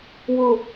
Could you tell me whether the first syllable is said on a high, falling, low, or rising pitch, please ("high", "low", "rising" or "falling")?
low